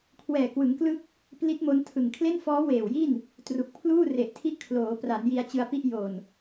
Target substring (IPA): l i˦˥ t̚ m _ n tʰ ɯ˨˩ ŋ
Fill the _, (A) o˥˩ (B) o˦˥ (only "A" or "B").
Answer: B